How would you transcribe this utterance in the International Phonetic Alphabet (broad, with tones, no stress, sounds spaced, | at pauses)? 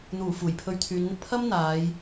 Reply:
n̪ uː˨˩ f uː˨˩ j pʰ ɵ˧ ɥ t̪ʰ yː˨˧ n n̪ ɪ˧ k̚ pʰ ɐ˥ m n̪ aː˨˧ j